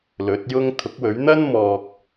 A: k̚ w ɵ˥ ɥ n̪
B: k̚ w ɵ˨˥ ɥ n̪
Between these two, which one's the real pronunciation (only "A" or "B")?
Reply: B